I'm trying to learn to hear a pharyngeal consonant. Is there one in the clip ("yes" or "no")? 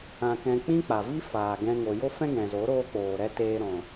no